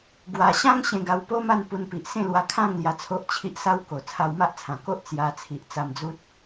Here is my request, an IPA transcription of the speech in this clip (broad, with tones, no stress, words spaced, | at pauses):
ɡwa˧ ɕã˦ŋ ɕẽ˧ɡa˧wpo˦ma˥˧n pu˧npi˨ʔ sẽ˥˧lwa˧ kʰã˥˧ŋ lja˧t͡sʰo˦ʔt͡ɕʰi˦ʔsa˦w ko˨˩ t͡sʰa˧wma˦ʔt͡sʰã˨˩ko˦ʔ t͡sja˧ t͡sʰi˨ʔt͡sa˧md͡zu˦t̚